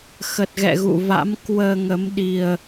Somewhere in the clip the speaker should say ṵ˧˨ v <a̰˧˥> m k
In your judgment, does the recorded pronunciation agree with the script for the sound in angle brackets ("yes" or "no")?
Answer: yes